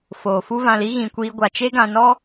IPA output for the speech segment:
f oː˨ f u˦ v ã˧ l i˦ ɣ ĩ˨ kʷ iː˧ ɡʷ a˨ t͡ʃ e˦ ɡ ã˧ n ɔ˦

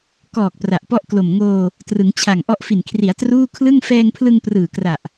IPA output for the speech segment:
k ɔː˨˩ k̚ p r a˨˩ ʔ p ɔ˥˩ ʔ k l o˨˩ m ŋ oː˧ | t r ɯ˩˦ ŋ t͡ɕʰ a˨˩ ŋ ʔ ɔ˦˥ ʔ f i˨˩ n kʰ r i˩˦ a̯ t r uː˥˩ kʰ l ɯ˥˩ ŋ f ɛː˧ ŋ pʰ l ɯ˧ ŋ p r ɯː˨˩ k r a˨˩ ʔ

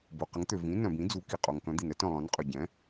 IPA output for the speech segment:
b o˩ q ə˩˥ ŋ t̪ ø˩ v ĩ˩˥ n œ̃˩ b ĩ˩˥ d͡z u˩˥ k i˩ qʼ o˩ ŋ k œ̃˩˥ d̪ i˩ n ɛ˩˥ t œ̃˩ lˠ œ̃˩˥ n qʼ ø˩ ɟ ɛ̃˩˥

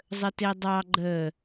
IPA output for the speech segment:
zˤ ə t e dˤ ɑ ɡ͡ǃ ə

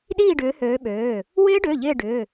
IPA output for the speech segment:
ɗ iː˥˧ ɖ ʏː˨˦ h øː˨˦ ɓ øː˩˧˩ | w ɪː˦˥ ɖ ø˩˧˩ ʎ ɪː˥˧ ɖ ʏː˩˧˩

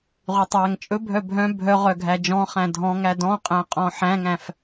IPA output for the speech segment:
ʁ y tˤ æ ŋ t͡ʃʼ ɵ bʱ œ bʱ œ̃ bʱ œ ʁ œ ɡʱ æ d͡ʒ ɔ̃ χ æ̃ dʱ ɔ̃ ŋ æ d ɔ̃ qʼ æ̃ qʼ ɔ̃ ħ æ̃ ŋ æ̃ f

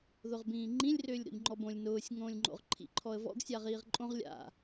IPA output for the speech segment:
ð ʊ ʁ b ĩː ŋ͡ǃ ĩ lʲ r ʏː lʲ ɾ o̰ ʎ ŋ͡ǃ ɔ b õ lʲ n ʊː sʲ ŋ õː lʲ ŋ͡ǃ o̰ ʁ ǃʰ ḭ ǃʰ ɔ ə̯ v ɔ̰ ɡ sʲ a ʁ iː ʁ ǃʼ õ ʁ lʲ a̰

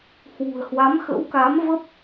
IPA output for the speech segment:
h w ṳ˨˩ ə̯ h w a˨˦ m x ə̰˧˥ w k a˨˦ m v ə˦˥ p̚

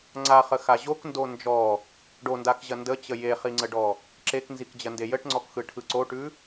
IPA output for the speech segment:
ŋ͡ǀ a χ ə x a ʑ o k n d o n d͡ʒ ɔ | ɖ o n d a k ʑ ɐ n d ə t͡ɕ ə j e χ i ŋ͡ǀ ə ɖ ɔ | ǁ e k n z i k d͡ʑ ɐ n d e j ə ʈ ŋ͡ǀ ɔ k x ɯ ʈʰ ɯ ǀ o ʈ ʉ

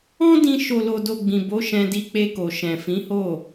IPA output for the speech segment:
ɔ̃˦ d ĩ˧ ʃ o˨ l o˨ d o˨ ɡ͡b ĩ˨ b o˨˦ ʃ ɛ̃˧ d i˧ k͡p e˧ k o˨ ʃ ɛ̃˨ f ĩ˨˦ h o˦˨

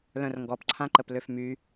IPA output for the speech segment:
l œ̃ r ŋ ɡ ɔ p ǀʰ ã ǃ ə p l ø f m y

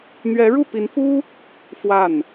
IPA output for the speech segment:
n̪ ɥ ɛ˧˥ ɻ u˥˩ p i˧˥ n f u˥ | f w a˥˩ n

